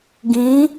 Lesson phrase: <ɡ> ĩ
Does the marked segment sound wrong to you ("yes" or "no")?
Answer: no